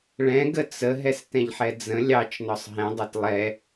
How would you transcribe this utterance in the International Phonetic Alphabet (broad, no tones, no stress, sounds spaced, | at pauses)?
ɭ ɛ̃ ɡ ə t͡s ə ɦ ɛ s t ɛ̃ ʎ ħ ɛ d͡z ə̃ lʲ ɑ t͡ʃ n ɔ sˤ ɦ ɛ̃ dˤ o t lˠ ɛ